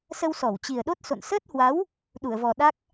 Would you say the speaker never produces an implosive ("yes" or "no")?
no